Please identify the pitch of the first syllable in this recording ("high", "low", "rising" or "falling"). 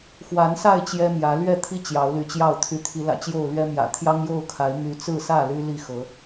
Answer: rising